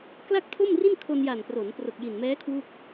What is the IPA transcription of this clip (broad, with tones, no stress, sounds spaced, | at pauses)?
k l a˥˩ k̚ tʰ o˥˩ m r i˥˩ n kʰ o˧ n j a˨˩ n p r o˩˦ n p r o˨˩ k̚ j i˨˩ n m ɛː˦˥ kʰ w u˥˩ k̚